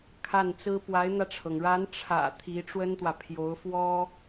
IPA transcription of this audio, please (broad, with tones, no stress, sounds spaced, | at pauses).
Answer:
kʰ a˥˩ n t͡s ɹ̩˥ p w a˧˥ ɪ̯ n̪ ä˧ ʈ͡ʂʰ ɤ˩ ŋ ɻ a˧˥ n ʈ͡ʂʰ ä̰˨˩ t̪ʰ i˧˥ ʈ͡ʂ w ə˥ n t̪ w ä˨ pʰ j o˧˥ ʊ̯ f w ɔ˥